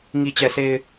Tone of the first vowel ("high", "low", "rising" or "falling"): low